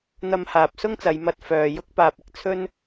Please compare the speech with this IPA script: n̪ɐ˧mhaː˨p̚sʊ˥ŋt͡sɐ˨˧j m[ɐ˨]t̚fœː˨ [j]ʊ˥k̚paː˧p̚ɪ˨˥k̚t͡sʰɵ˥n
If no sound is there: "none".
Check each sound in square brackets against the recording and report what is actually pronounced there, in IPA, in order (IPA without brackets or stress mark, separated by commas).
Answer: ɐ˧, j